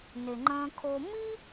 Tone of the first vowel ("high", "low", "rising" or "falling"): low